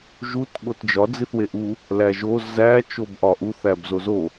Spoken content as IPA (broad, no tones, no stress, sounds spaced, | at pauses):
ʒ u t ɠ o t d͡ʒ ɒ d͡z i θ w e ʔ u | l æ ʒ o z æ t͡ʃ o b ʔ ɒ ʔ u θ æ b z o z o